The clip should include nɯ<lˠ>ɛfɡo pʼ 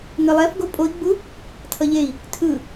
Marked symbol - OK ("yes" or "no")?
yes